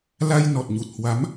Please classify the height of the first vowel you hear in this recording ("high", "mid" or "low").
low